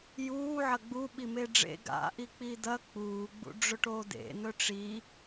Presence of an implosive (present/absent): present